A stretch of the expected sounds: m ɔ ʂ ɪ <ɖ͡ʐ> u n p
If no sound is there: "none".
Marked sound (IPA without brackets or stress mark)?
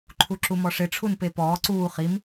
ʈ͡ʂʰ